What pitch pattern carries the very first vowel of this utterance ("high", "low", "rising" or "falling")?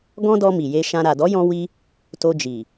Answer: high